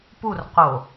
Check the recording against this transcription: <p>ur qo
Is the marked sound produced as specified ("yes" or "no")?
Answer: yes